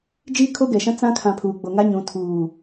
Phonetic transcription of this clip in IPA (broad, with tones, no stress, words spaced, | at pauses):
d͡ʒiː˦ kʰo˦ɡɛ˨ʃã˦ t͡sã˦kʰã˨ pʰuː˨ɡ͡bo˨ ŋa˦ɲũ˨ tʰuː˨